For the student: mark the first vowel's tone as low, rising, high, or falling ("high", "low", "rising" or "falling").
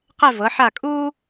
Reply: falling